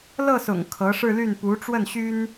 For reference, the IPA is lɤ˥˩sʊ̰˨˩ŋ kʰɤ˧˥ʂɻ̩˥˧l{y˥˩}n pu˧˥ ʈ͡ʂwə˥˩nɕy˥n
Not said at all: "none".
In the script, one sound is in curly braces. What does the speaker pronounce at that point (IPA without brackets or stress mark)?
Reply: y˥˩